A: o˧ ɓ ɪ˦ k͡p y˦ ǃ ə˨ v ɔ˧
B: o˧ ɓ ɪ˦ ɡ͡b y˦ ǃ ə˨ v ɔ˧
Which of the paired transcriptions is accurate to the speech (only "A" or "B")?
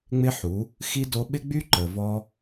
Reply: B